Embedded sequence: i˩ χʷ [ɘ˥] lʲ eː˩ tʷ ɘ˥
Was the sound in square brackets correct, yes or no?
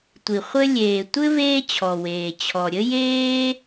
no